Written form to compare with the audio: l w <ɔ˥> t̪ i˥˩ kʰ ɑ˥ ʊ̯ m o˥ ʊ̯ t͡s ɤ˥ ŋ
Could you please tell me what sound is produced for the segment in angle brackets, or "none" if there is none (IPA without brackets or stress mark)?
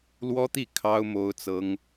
ɔ˥